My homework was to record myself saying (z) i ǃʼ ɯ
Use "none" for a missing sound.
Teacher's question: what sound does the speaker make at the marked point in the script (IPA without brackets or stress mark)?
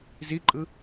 z